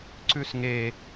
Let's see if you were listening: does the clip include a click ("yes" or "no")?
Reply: yes